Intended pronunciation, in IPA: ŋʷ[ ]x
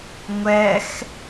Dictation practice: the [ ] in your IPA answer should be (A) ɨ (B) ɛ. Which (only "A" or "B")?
B